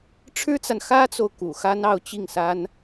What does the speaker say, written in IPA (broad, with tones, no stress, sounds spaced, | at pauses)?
ʈ͡ʂʰ ɻ̩˥ t͡s a˨ n x ä˥ t͡s o˨ ʊ̯ k ṵ˨˩ x a˥ n ɑ˥˧ ʊ̯ t͡ɕ i˥˩ ŋ s a˥ n